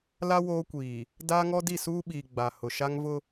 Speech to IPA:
la˦ woː˦kʷiː˨ | daː˦ŋɔ˦ di˦˨suː˦ɓiː˨ ɡ͡ba˨hʊ˨ʃa˦ŋ vʊ˦

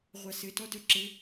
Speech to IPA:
ʁʷasɘ tɔdœǁɘ

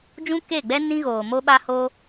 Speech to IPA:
d͡ʒũ˦ke˦˨ɡ͡bɛ˦ nĩ˦ɣoː˨ mo˧ɓa˧ho˧

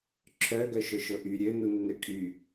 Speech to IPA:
ǁʰœ ɡœʃʊʃʊʔy ɾʲø nunːøkʼy

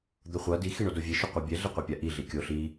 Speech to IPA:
d̪oχʷʌ di xiɳodovʲe ʃoqʷʌbʲɛ ɮiqʷɛpʲaʔi ɮikʲo ɬi

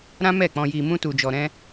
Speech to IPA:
ɾã˦mɛ˦˨k͡pɔ̃˧ji˧ mũ˦tu˧d͡ʒɔ˧ɾɛ̃˦

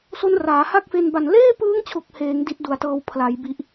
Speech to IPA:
so˦˥nraː˩˦ha˥˩k̚fe˧n ba˨˩n leː˥˩pɯː˦˥ŋt͡ɕʰo˨˩k̚ heː˩˦ŋ di˦˥t̚du˨˩a̯tɤː˧w pʰla˩˦jbi˨˩ʔ

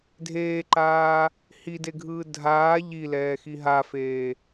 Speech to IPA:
dʱeːǃaː | hideɡʱɯː dʱaː ʎilɛːxi ɦafeː

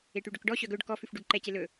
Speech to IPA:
eʈyɖɵkɖɔ ɕœɡɵɖ kɔ fʉfɖʉɡǃɛce lɵ

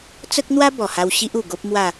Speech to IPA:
t͡sə˦k̚n̪wa˦ bɔ˨˩ha˧w ɕi˦ʔu˨˩ɡo˦p̚ mwa˥˧

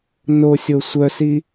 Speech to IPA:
nosʲo sʷœsi

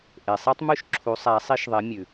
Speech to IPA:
ʔe˨sˤi˥tˤmʉ˥ʃ ǁʰu˧˥sˤæ˧˥sˤi˥ʃ ðˤe˧˥mʲʉ˨

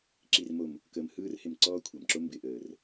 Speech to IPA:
ǁi˨rmo˨m | kəː˨mhɯː˦rhɪ˨m ǀɔː˦kʷʰɐ˨mǁo˦ mbɪ˨ʔəː˨r

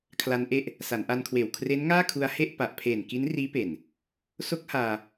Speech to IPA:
kʰla˧nʔe˥˩ʔ | sa˩˦nʔa˧nkʰweː˨˩w kʰre˦˥nŋaː˥˩kʰu˧a̯he˥˩ʔ pa˨˩ʔ pʰeː˨˩nki˦˥nriː˦˥pe˨˩n | so˦˥k̚haː˧

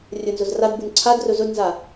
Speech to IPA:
rʲɵnzɵz radbun ǀʰadrɵ zɵdnza

